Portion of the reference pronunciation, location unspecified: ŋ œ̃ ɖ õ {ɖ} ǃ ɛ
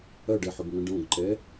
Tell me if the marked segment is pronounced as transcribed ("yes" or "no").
no